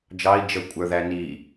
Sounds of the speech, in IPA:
d͡ʒɑi̯ d͡ʒə kʷʼə˞ðæniː

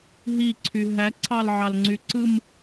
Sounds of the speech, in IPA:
ɦiǀʰy ɦæǀʰɑlʕɑlŋ͡ǀy ǀɯm

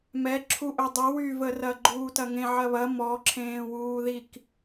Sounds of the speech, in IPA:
mɛǁʰuʔɵ dˤəwyvə rɐɡ͡ǃuːtɐŋẽ ʕɐβɐ mɔǁʰẽːwuːðik

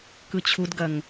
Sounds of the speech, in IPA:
kɯt͡ɕʰudɡɐŋ

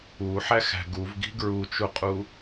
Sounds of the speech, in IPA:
uħæxæ̤ ɡuvɡi̤ ɡɹut͡ʃuqʼu

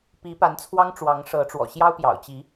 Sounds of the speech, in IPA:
pi˨˦pa˨˦nt͡sʰwɑ˦ŋ ʈ͡ʂwɑ˨˦ŋʂɤ˨˦ʈ͡ʂwɔ̰˨˩ ɕjɑ˦ʊ̯pjɑ̰˨˩ʊ̯t͡ɕi˨˦

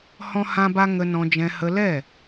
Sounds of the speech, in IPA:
hɔ̃˦hã˦ba˦ ŋə˧nɔ̃˧d͡ʒɛ̃˧ hə˧lɛ˦˨

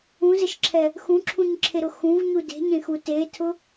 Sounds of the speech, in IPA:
ũzɘʃǁʰɛ | xũǁʰũɲǁʰeɾʊ xũvɲu de̤ɲẽxu tetʰʊ

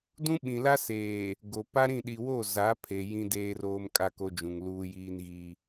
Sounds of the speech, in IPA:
dũ˦ɓĩ˨la˦seː˨ | ɡo˨ pa˦ɾĩ˦˨ɗi˨ wo˦˨ za˨˦pʰe˨ jĩ˦deː˦roː˦m kʼa˦ko˦d͡ʒũ˨ŋ luː˦jiː˦nɣi˦

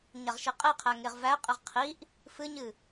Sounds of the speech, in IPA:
ɲaʁʃeqʼeqʰæ ŋeʁvæqʼeʁ qʰiʔ | fɨɲɨ

